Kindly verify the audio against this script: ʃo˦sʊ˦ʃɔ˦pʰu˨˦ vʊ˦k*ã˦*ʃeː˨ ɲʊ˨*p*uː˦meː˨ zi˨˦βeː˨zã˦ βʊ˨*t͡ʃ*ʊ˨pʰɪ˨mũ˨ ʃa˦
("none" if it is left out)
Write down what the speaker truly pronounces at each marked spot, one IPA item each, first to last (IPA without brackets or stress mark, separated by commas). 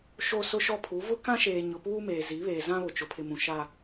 ã˦, p, t͡ʃ